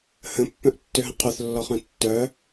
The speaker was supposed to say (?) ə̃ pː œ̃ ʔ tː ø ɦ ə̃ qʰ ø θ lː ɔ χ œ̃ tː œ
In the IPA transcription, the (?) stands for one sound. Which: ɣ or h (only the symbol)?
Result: h